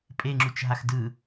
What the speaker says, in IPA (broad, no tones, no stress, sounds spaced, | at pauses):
pʼ e ŋ͡ǁ u t͡ʃ ɦ a x d ɯ